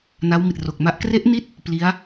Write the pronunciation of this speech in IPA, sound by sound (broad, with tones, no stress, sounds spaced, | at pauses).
n a˦˥ w m i˨˩ t̚ r o˨˩ k̚ m a˦˥ ʔ k r e˦˥ ʔ n i˦˥ t̚ | p l i˦˥ a̯